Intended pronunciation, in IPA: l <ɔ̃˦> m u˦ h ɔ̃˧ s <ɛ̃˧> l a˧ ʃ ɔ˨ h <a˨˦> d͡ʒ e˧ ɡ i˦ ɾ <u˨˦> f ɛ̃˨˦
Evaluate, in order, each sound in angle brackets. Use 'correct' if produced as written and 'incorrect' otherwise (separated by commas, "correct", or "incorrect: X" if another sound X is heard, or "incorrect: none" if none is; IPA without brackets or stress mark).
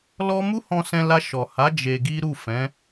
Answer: incorrect: ɔ˦, correct, correct, incorrect: u˦˨